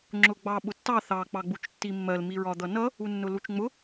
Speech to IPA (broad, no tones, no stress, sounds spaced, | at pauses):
ŋ͡ǁ ʊ ɡ͡b ɑ ɓ ʊ tː ɑ θ ɑ k͡p ɑ ɡ͡b u t͡ʃ tː i mː ɜ l m i ɹ ɒ d̪ ʌ n ʌ | u nː ʊ l u t͡ʃ ŋ͡m ʊ